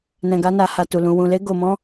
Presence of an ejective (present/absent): absent